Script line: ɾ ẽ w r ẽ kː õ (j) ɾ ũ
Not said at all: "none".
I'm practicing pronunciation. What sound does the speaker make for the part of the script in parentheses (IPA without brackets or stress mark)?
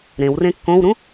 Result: w